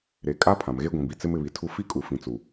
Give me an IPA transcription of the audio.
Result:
ɾ e˨ kʼ a˦ pʰ ã˨ m ɣ e˦ ɡʷ ĩ˨ b i˨ t͡s ɪ˦ m ɪ˨ β i˨ tʰ u˦ f i˦ kʼ u˨ f ĩ˨ t͡s u˨

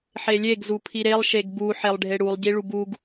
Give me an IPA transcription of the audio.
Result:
ħ e lʲ e ɡ z u pʰ i ɾ e lˠ ʃ e ɡ b u ħ e lˠ ɖʱ e ɽ u lˠ ɟ i ɭ u b u ɡ

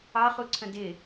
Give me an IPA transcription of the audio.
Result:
ɑ χ u ǀʰ ə̃ d ɪ

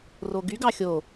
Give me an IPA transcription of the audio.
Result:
r o ɡ y ɡ ɑ xʲ o

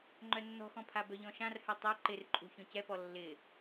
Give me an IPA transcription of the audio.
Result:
ŋ͡ǃ œ nː ɔ̤ x ɔ̃ pʰ a b œ ʎ ɔ̃ ʃ ã r h œ tˤ a ǃ ɪ r ǃʼ ṳ ç ɔ̃ c ɛ p ɔ lː ɪ

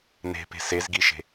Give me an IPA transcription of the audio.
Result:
n e̤ p e̤ s e z ɡ i ʃ e̤

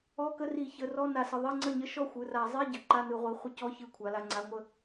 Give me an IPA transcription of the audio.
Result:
ɔ˧˥˧ k ə˧˥˧ r i˧˩˧ ç ə˩˧˩ r ɔ˧˥˧ n a˧˩˧ s ə˩˧˩ ðˤ i˧˥˧ ŋ͡ǀ ə˥˩ ɲ ə˥˩ ʃ ɔ˥˩ xʷ ɯ˩˧˩ r a˧˩˧ zˤ i˧˥˧ ɟ ə˩˧˩ ǃ a˧˥˧ n ɯ˧˩˧ ʁʷ i˩˧˩ χʷ ə˥˩ c ɔ˧˥˧ ç ɯ˧˩˧ kʷʰ a˩˧ l a˩˧˩ ŋ͡ǀ a˩˧˩ ŋʷ ə˧˩˧

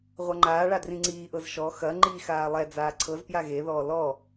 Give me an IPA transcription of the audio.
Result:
ʁʷ a ŋ͡ǃ aː ɭ a d r ĩ ŋ͡ǀ iː ʔ ɤ z ʃ ɔ x ɐ ŋ͡ǃ i x aː lˠ ɛ d͡z aː ǀʰ ɤ z p j a ɣ e ð ɔː l ɔ

